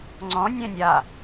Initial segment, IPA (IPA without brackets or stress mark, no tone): ŋ͡ǀ